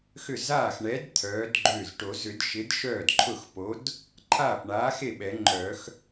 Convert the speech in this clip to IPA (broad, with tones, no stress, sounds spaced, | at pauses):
x ʏ˥˩ z aː˥˩ x ɳ ɛ˨˥ d t̪ʰ œː˨˥ d ɡ͡ǃ ʏː˥˩ z ʈ o˨˩˦ z ʏ˨˩˦ d ʃ ɪ˨˥ d ʃ œː˥˩ d ǃʰ ʊ˥˩ x p o˨˥ d | ǃʰ aː˥˩ p ɳ aː˨˥ x e˥˩ ɓ ɛ˨˩˦ ŋ͡ǃ œː˨˩˦ x